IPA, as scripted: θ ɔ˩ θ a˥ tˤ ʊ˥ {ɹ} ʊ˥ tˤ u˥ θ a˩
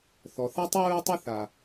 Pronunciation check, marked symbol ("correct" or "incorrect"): correct